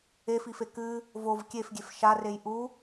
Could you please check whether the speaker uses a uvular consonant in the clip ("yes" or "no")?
no